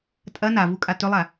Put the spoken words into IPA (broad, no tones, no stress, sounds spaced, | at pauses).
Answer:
tʼ ɐ n a v u kʼ a t ɵ lˠ a